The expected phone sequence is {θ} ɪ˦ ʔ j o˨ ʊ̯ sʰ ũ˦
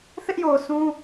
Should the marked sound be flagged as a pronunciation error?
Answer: no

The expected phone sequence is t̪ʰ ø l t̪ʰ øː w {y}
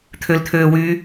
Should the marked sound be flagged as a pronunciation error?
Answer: no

